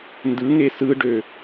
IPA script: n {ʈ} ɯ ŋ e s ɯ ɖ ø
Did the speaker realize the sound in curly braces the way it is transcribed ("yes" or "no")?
no